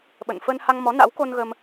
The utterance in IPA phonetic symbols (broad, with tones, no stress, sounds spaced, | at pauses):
ɓ ə̰˧˨ n f ə˧ n h a˧ ŋ m ɔ˨˦ n a̰˧˥ w k o˧ n ɣ ə˧ m